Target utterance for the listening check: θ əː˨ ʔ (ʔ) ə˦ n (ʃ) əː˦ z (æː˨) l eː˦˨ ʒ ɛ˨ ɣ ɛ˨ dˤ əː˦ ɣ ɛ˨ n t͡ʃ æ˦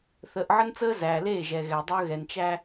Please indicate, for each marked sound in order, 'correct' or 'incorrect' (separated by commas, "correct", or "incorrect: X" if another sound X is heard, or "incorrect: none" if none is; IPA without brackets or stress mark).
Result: incorrect: ʕ, incorrect: t͡s, correct